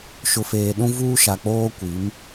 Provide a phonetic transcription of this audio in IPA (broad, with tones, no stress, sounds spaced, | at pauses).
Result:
ʃ ʊ˨ f eː˨ ɗ ũ˦ v uː˦ ʃ a˨ k͡p oː˦ kʷ i˨˦ m